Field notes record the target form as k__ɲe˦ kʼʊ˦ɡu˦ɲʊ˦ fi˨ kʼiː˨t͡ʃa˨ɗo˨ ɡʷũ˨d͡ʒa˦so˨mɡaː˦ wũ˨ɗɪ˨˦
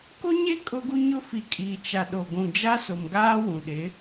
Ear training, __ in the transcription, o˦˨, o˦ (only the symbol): o˦